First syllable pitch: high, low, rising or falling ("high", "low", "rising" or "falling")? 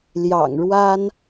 low